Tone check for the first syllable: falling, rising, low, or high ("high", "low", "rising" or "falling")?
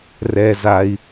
low